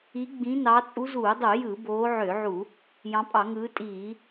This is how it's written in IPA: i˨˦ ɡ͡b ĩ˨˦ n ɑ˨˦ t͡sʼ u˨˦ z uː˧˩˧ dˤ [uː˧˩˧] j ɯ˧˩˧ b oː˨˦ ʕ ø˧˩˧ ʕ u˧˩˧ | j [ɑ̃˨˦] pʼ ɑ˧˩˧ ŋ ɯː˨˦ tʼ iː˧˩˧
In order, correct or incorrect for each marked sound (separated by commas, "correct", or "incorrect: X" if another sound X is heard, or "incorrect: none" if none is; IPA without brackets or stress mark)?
incorrect: u˧˩˧, correct